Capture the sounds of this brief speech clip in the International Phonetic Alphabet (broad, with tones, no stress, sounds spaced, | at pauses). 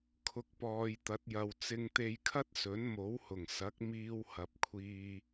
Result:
kʰ ʊ˨ k̚ p ɔː˨ j t̪ ɐ˨˥ t̚ j ɐ˨ w t͡s ɪ˧ ŋ t̪ e˧ j kʰ ɐ˥ t̚ s ɵ˨˥ n m o˨˥ w h ʊ˨˩ ŋ s ɐ˨˥ k̚ m iː˧ w h ɐ˨ p̚ kʷʰ iː˧